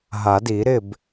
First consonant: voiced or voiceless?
voiced